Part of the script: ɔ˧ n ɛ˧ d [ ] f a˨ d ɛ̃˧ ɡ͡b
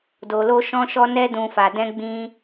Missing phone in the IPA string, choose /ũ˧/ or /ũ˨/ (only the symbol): ũ˨